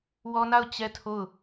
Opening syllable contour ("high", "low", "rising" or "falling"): high